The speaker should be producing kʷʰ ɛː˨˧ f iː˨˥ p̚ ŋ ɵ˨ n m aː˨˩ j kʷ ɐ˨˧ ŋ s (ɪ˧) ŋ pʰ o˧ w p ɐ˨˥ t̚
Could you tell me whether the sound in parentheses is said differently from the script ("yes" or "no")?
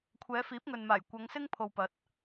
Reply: yes